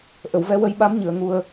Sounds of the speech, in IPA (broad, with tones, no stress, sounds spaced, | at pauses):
ʔ ə˨˩˨ w v ɛ˧ w ə˧ j ɓ a˧˥ m ɲ ɨ˨˩˨ ə̯ ŋ u˨˩ ə̯